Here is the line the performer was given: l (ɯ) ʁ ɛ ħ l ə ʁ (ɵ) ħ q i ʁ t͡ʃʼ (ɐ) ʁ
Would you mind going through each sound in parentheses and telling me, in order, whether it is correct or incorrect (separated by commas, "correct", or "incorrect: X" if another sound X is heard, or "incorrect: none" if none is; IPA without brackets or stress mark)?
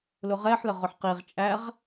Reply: incorrect: ʊ, incorrect: ʊ, incorrect: æ